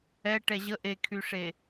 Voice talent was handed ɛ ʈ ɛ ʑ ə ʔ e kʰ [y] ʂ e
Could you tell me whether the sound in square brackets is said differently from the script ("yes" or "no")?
no